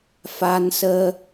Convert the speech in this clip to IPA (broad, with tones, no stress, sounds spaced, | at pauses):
f a˧ n s əː˧